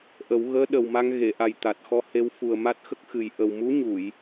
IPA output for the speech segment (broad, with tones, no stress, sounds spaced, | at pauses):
ʔ ə˨˩˦ w ɣ əː˧˥ ɗ ə˨˩ w m a˧ ŋ ɣ e˨˩˨ ʔ a˨˩ j t̪ a˨˩ t̚ x ɔ˧ h e˧˥ w f u˨˩ ə̯ m a˦˥ t̚ x ə˦˥ k̚ x ɨ˨˩ j ʔ ə˨˩ w m u˧˥ ɲ u˨˩˨ j